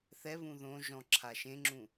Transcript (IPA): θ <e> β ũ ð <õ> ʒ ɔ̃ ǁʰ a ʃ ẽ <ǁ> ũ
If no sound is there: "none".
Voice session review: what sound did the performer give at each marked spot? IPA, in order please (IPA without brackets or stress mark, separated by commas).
ɛ, õ, ŋ͡ǁ